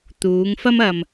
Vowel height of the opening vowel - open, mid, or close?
close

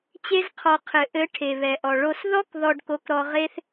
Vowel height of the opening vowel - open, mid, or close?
mid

